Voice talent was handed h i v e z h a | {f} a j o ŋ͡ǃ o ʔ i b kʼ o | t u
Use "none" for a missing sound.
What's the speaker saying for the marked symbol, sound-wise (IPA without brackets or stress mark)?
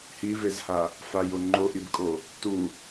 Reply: f